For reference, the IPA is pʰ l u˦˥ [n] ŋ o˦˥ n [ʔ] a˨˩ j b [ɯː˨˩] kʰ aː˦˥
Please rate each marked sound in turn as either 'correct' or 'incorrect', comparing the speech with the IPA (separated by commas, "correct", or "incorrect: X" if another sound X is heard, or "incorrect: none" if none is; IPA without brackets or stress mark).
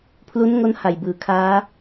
correct, incorrect: h, incorrect: ɯː˩˦